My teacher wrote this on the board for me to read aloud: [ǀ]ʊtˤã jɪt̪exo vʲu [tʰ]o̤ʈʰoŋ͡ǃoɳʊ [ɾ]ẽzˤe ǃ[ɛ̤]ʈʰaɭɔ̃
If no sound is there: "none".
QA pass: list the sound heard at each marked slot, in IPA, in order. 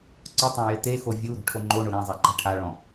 ǀ, ɾ, ɾ, ɛ̤

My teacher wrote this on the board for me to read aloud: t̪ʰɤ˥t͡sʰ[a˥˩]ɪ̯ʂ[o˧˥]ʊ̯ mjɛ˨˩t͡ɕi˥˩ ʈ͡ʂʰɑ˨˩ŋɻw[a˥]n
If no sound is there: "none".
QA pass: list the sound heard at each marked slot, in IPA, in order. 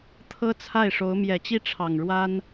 a˥˩, o˧˥, a˥

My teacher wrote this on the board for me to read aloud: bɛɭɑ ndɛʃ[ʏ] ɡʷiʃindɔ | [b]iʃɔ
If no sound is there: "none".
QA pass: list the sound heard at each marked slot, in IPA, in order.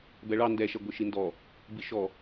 ɛ, b

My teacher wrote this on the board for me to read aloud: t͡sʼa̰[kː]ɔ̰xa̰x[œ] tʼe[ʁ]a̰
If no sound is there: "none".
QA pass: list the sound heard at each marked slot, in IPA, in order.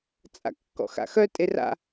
kː, œ, r

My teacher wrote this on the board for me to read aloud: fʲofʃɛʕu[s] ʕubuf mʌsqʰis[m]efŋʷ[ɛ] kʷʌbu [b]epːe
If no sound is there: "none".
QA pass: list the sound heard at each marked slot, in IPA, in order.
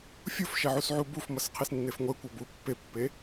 s, nː, ɛ, pː

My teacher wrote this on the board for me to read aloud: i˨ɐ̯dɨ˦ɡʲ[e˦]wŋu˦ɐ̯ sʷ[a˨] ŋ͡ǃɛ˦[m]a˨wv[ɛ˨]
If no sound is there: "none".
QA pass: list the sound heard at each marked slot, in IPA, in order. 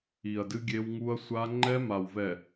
e˦, a˦, m, ɛ˨

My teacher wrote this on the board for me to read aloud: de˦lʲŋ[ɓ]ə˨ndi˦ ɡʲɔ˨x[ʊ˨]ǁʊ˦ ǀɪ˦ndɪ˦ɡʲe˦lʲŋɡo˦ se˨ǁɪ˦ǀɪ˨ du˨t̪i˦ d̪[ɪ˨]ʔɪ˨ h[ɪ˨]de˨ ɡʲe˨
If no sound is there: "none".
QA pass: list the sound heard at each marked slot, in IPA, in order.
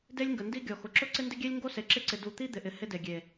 ɡ, ʊ˨, ɪ˨, ɪ˦

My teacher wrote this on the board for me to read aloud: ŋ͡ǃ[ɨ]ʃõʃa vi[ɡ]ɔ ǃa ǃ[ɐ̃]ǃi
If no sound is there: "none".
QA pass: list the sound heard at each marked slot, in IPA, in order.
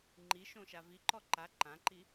i, ǃ, ã

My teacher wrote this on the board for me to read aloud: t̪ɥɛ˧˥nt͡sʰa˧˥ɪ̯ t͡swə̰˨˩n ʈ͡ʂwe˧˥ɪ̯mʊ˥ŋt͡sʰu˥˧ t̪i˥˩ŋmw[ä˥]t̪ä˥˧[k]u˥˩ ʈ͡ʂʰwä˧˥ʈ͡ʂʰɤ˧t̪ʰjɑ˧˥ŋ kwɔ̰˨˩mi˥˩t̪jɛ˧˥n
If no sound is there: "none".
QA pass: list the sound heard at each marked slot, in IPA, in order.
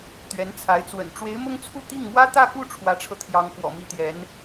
ä˥, k

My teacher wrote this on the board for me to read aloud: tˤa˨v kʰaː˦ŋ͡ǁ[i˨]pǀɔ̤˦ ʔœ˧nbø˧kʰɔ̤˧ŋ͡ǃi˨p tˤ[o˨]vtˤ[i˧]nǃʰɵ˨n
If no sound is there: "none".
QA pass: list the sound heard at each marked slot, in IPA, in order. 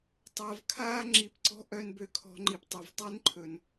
i˨˦, o˨, i˦

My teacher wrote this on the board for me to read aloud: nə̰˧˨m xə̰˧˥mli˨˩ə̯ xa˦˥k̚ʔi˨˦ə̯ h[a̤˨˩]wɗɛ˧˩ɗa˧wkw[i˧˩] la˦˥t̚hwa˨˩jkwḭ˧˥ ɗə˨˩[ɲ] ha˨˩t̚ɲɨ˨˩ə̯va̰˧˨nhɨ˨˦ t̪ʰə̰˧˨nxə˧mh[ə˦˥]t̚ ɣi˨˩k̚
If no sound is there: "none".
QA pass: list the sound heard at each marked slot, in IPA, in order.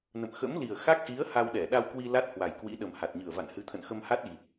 a˧, i˧, m, a˦˥

